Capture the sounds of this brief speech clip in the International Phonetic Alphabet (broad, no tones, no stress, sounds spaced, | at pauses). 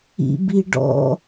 ḭ b i ɖ ɔ̰